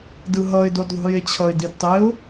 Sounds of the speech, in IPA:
d ɯ ɦ ʌ ɪ̯ d o d ðˤ ṳ j e t͡ɕʰ ʌ ɪ̯ d i d tˤ e ʊ̯

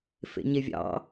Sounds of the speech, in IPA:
f ḛ ɲ e vʲ ɑ̰

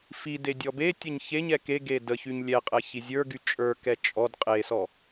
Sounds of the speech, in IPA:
f i d e dʲ ɔ b e tʲ ə ɲ ç e ɲ ɛ k e ɡ e d ə ç y ɲ lʲ ɛ qʼ ɛ ç i zʲ ə˞ ɡ y t͡ʃʼ ə˞ k ɛ t͡ʃʼ ɔ d qʼ e s ɔ

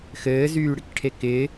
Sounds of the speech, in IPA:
x ɘː z yː ɽ ɪ k ʈʰ e k ɪ

